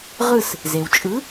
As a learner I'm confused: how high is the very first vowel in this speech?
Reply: high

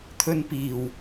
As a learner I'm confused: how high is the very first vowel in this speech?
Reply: mid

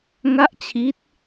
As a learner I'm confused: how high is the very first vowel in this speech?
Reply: low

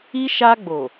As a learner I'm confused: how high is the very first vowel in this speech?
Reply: high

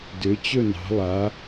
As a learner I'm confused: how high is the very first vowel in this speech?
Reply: mid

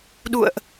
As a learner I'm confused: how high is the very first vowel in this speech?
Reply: high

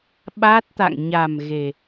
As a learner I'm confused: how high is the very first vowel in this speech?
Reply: low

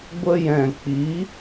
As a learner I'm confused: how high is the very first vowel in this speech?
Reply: mid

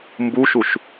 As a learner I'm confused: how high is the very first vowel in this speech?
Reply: high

